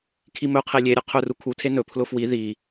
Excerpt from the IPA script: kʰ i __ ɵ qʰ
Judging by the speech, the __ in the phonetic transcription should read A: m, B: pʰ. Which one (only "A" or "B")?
A